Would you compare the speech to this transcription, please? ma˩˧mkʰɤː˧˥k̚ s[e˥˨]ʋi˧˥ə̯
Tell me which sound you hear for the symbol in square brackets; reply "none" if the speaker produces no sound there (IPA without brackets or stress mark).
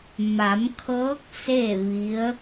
e˥˨